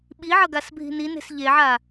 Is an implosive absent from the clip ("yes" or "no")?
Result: no